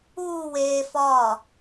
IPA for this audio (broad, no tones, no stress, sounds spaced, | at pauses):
uː w eː f ɒː